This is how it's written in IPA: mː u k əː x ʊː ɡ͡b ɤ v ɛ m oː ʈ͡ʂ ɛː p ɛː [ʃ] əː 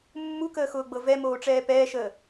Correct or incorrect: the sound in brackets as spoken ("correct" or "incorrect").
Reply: correct